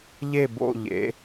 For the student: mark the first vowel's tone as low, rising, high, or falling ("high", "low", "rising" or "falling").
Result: falling